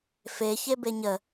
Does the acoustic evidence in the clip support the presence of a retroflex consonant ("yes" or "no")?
no